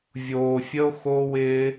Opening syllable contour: low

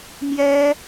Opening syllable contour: high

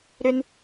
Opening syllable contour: low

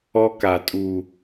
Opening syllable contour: high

